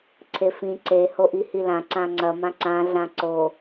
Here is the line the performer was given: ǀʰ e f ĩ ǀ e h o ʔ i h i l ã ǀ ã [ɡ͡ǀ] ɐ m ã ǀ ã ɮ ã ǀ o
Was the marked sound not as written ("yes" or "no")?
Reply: yes